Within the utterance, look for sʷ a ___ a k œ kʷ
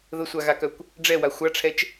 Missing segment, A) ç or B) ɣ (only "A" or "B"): B